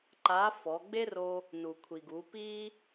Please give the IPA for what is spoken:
ǃa˧˥fɔ˩˧ ɡ͡be˥ro˧ | nu˩kʷʰi˩ɡu˩˧pi˥

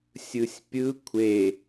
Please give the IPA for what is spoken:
sʲɯsʲpʲɯ kʷʰe

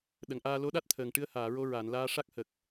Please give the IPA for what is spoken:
ɗə˨˩˨ŋʔaː˧ lo˧˥ɗa˦˥t̚t̪ʰəː˨˩ŋʈɨ˧ə̯ haː˨˩˨ɹo˧ ɹa˨˩˨nlaː˧ ʂa˦˥k̚hə˨˩k̚

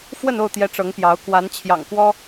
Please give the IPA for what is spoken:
fwə˥˨no˥˨ʊ̯t̪jɛ˨˦ ʈ͡ʂɤ˨˦ŋpjɑ˨˦ʊ̯ kwa˨˦nt͡ɕʰjɑ̰˨˩ŋkwɔ˦

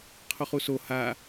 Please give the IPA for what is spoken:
qʰoχuso ha

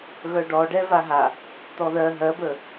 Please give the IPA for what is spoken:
ɣœɖɔɖɛ vaɦa | t̪ɔðɜ ɦɜbə

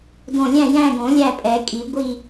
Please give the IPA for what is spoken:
dõ˦˨ lʲæ̃˦˨jæ̃˦˨ɡõ˨˩˦ lʲæ˦˨pʼɛ˨˩˦kʼi˨˩˦ ɡʷi˦˨

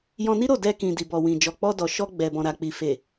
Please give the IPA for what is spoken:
jɔ̃˧ni˦ɾo˦˨ dɛ˧kĩ˨ di˨bɔ˨wĩ˨ d͡ʒɔ˨k͡pɔ˧dɔ˨ʃɔ˧ ɡ͡bɛ˨bɔ̃˨ɾa˨k͡pi˨ fe˨

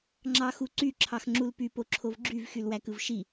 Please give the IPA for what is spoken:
ŋ͡ǁɑxuǀy ǁʰɑxŋ͡ǁulpy poǁʰovɡ͡ǁyv xylwækɯvʃi

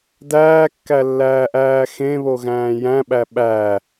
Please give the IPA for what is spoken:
dæːkːælːæːʔæː xẽβoɣæ̃ː jæ̃ɓæ ɓæ

